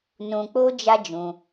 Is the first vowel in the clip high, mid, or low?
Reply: high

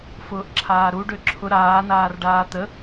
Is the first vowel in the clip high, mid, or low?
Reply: high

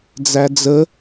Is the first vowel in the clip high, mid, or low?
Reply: low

